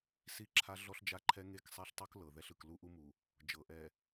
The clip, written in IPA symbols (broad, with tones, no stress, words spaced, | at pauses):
si˦˨ǁʰa˦ ɮɔ˦ɬd͡ʒa˦ǃʰɛ˦ ŋe˦˨ksˤɛ˦ɬtˤu˦k lɤ˨ðɛ˦ɬɯ˨k lu˦ʔu˦mu˨ | d͡ʒɤ˨ʔɛ˨